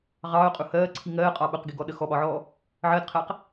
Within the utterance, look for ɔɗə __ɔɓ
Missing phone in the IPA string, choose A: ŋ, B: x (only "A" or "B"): B